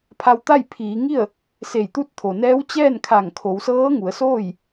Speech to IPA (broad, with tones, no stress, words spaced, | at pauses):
pʰa˧wt̪a˥˨j pʰiː˩˧ŋi˥˨ə̯ | se˧˩jt̪u˧˥t̚t̪ʰo˩nɛː˧˥w t͡ɕɛː˥˨nkʰa˧˩ŋkʰo˩˧w sɤː˧˥ŋu˩˧ə̯soː˥˨j